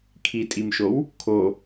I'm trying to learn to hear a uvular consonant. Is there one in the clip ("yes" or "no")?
no